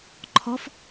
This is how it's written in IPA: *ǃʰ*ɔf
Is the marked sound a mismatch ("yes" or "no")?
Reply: no